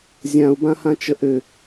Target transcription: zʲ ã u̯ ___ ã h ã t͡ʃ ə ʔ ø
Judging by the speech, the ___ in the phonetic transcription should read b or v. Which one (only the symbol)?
b